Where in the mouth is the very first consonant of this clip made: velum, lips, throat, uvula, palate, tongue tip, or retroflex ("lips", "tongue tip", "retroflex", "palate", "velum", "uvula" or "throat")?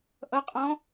throat